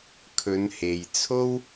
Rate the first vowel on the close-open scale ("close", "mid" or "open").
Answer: mid